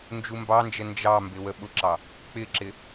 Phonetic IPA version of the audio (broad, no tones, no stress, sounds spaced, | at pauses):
n d͡ʒ u m b ɑ n d͡ʒ ə n d͡ʒ ɑ m b ɪ w ə ɓ ʊ ǁ ɑ | k͡p ɪ ǁ ɪ